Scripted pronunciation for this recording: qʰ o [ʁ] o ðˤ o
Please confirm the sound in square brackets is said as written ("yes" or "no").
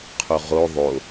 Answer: yes